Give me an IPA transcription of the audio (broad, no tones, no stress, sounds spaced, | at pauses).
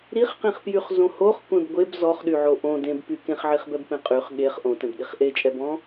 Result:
ɾ i χ q ĩ χ p j y χ z õ h o χ kʷ ẽ b ɡʷ e b z ɔ χ ɗ y ʕ o ʔ õ d ẽ b p y k ẽ χ ʕ i χ b ɛ b p ẽ qʼ y χ ɠ e χ ʔ õ t ɛ̃ b ɗ i χ ʔ e t͡ʃʼ ɛ b ɔ̃